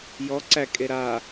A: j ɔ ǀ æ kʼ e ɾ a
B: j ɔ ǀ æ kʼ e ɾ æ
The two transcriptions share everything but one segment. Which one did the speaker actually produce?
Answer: A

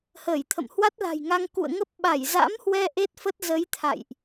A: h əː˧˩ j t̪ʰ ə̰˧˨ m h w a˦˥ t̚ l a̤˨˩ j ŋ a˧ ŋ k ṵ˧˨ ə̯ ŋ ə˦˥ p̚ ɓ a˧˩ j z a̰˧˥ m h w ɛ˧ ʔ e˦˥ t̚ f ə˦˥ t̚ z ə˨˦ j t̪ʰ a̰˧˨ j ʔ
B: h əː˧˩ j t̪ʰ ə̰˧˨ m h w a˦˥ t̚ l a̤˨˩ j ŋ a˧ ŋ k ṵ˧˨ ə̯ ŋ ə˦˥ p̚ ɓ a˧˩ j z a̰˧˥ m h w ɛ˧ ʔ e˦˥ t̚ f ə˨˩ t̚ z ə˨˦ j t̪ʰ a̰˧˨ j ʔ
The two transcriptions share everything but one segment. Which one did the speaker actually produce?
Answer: A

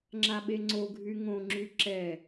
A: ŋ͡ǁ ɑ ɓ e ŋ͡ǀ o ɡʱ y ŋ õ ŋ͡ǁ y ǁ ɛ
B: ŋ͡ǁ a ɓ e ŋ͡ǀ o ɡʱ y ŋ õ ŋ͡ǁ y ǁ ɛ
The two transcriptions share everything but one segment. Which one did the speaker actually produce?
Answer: B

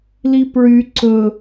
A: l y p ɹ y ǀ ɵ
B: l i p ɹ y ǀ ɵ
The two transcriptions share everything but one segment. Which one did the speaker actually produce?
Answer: B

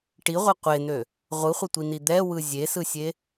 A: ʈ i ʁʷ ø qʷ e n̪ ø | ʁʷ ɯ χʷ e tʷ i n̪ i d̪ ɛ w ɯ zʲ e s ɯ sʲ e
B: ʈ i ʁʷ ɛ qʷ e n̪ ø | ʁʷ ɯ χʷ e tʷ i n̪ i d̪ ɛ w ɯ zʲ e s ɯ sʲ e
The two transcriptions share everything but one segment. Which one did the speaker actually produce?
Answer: B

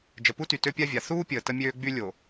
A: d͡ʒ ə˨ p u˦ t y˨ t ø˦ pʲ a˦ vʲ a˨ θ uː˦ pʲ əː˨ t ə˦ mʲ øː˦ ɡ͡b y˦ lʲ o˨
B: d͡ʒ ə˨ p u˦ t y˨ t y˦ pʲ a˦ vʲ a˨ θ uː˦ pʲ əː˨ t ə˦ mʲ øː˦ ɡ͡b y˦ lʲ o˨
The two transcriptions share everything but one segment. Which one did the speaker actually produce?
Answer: A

